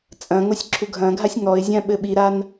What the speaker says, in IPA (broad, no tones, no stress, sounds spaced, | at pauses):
t͡sʼ ɐ̃ ŋ o sʲ ǁʰ u ɡʱ ɐ̃ ɡʱ a sʲ ŋ ɔ ɪ̯ zʲ ã ɓ ɘ ɓ i ɾ a n